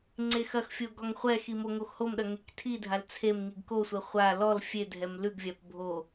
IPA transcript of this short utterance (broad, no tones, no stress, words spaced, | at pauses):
ŋ͡ǀexɐxfʲo ɡɔŋχʷɛxi moŋoxhomɗɐ ŋektʰidʱal t͡sʰem ŋiɡkosʷɛ χʷa lɔl fʲedʱɛm lʉɡvʲap bʱo